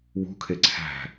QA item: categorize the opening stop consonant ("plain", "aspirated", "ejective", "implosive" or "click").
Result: aspirated